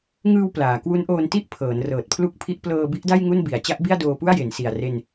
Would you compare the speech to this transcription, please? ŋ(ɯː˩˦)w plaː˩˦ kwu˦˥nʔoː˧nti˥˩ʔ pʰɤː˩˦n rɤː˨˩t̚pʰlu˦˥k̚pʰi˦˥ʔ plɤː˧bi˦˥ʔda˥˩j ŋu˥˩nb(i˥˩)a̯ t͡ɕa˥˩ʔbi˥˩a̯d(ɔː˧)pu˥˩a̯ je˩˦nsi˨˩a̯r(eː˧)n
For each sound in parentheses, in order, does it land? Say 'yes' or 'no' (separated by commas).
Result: no, no, no, no